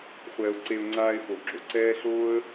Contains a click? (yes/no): yes